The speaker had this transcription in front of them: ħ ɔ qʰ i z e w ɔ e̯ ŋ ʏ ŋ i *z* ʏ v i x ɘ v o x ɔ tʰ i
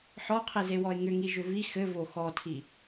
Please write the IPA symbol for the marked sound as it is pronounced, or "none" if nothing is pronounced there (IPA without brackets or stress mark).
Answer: ʒ